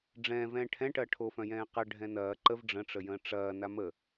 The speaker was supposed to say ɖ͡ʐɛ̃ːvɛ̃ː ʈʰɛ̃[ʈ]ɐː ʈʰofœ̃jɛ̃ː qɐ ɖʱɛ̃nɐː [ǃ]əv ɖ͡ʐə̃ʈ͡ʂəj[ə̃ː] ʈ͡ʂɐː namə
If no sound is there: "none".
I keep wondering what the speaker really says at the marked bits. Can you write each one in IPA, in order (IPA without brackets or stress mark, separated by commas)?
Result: ʈ, ǃ, ə̃ː